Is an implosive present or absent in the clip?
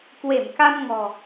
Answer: absent